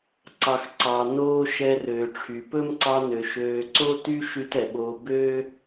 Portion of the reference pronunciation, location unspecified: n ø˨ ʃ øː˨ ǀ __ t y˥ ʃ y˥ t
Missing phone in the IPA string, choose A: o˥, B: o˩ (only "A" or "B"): A